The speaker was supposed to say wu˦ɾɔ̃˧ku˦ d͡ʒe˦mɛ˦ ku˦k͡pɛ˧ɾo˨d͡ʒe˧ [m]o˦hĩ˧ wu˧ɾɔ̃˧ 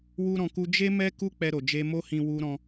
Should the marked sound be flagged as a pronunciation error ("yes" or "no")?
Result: no